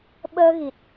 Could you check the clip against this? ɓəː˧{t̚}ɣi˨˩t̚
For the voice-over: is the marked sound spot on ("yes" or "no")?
no